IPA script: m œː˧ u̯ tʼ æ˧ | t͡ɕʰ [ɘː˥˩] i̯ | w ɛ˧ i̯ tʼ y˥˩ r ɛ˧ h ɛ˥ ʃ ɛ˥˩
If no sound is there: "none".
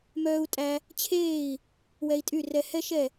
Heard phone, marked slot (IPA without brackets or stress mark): eː˥˩